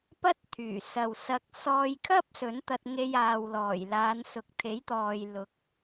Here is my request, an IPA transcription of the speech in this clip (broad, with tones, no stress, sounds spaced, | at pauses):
p ɐ˥ t̚ t̪ʰ yː˨˩ s ɐ˨ w s ɐ˧ k̚ s ɔː˧ j kʰ ɐ˥ p̚ s ɵ˨˥ n t̪ ɐ˧ t̚ ŋ e˧ j aː˨ w l ɔː˨˩ j l aː˨˧ n s ʊ˨ k̚ t̪ʰ e˨˥ j t̪ ɔː˨ j l ʊ˨˥ k̚